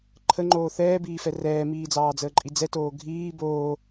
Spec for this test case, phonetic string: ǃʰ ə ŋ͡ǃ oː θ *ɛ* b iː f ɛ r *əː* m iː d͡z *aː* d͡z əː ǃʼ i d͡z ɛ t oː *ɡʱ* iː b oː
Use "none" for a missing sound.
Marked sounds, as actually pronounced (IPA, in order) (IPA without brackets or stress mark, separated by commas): ɛː, ɛː, ɑː, ɡʱ